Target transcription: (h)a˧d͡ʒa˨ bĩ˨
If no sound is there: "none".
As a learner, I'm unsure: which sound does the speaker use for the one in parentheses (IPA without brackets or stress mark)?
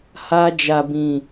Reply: h